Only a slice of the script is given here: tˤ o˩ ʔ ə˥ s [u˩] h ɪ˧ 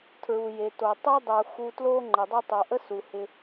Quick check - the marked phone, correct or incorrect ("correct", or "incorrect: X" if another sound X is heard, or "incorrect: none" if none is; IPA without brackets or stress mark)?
correct